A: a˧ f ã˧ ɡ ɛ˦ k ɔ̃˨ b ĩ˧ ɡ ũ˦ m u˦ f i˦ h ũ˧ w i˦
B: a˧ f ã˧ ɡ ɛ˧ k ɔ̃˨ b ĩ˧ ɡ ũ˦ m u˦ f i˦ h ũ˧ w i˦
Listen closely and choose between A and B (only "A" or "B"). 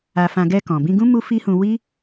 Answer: B